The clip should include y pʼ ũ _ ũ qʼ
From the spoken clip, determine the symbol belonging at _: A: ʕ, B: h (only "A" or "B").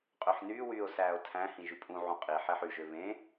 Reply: A